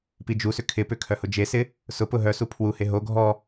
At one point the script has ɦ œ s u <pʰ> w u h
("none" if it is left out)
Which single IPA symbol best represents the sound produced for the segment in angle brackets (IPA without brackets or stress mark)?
pʰ